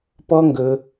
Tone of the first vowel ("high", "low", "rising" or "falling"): high